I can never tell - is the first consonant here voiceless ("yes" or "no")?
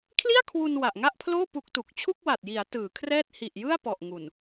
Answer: yes